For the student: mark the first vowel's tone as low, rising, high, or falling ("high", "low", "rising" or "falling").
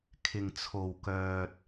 low